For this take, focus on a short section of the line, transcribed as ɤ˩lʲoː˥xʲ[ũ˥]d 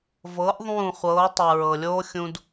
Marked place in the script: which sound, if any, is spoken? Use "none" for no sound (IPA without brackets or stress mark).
ũ˧